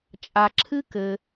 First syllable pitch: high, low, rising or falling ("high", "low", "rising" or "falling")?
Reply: low